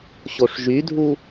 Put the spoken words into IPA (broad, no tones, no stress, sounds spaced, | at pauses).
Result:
ɕ o ʂ ʒ y dʱ u